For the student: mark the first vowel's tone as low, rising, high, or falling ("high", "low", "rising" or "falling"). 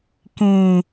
low